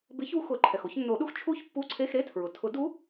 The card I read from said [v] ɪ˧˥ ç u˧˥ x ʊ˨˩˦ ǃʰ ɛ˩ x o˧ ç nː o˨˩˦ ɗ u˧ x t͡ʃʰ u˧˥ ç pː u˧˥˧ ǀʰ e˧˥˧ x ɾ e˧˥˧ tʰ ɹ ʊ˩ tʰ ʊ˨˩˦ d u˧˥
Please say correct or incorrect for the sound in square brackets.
incorrect